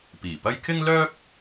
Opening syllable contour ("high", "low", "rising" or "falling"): low